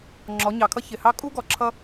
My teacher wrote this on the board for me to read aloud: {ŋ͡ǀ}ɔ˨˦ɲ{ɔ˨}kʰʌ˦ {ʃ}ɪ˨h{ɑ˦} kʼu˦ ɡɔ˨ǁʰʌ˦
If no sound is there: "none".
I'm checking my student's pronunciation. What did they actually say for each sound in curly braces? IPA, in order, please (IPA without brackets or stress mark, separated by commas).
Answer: ŋ͡ǁ, ɑ˨, ç, ɑ˦